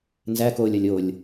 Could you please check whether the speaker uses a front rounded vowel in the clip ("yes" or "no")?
no